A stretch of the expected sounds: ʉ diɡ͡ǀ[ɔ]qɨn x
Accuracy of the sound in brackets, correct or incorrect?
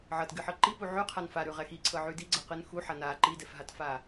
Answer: incorrect